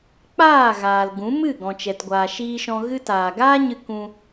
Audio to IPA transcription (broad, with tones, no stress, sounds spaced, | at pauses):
k͡p aː˦˨ ɣ aː˨ l ɡ ũ˨˦ m ɨ˦˨ ɡ ɔ̃˨ t͡ʃ ɛ˨ t ɡʷ aː˨ ʃ iː˧ ʃ ɔ̃˧ ɣ ɨ˧ t aː˨ ɡ aː˦ ɲ ɨ˧ k ũ˧